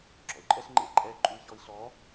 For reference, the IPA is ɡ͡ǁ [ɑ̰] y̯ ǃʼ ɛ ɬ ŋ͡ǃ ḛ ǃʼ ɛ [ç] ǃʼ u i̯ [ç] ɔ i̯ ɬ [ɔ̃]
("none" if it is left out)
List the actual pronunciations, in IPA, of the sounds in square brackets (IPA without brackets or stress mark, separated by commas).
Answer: ɔ̰, none, ç, ɔ